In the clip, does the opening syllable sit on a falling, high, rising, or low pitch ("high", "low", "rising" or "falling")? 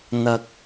low